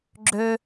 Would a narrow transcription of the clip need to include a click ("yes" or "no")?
yes